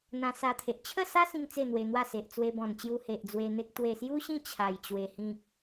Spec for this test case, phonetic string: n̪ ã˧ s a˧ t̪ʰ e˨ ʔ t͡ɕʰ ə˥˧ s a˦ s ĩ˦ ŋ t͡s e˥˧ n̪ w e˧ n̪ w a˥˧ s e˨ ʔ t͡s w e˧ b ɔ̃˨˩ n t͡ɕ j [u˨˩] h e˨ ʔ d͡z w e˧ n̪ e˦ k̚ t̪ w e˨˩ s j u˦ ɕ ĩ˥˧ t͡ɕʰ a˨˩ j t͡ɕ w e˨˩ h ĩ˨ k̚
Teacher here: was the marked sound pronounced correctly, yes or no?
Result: no